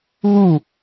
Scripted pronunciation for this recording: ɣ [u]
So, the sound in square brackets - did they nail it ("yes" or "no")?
yes